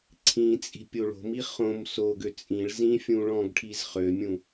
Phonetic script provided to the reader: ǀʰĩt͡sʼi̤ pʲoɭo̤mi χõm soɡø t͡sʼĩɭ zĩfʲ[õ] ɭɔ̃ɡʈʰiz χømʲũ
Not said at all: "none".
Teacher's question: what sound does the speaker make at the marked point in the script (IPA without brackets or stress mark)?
ũ